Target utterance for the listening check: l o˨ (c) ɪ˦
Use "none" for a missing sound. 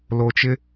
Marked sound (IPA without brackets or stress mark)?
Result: t͡ʃ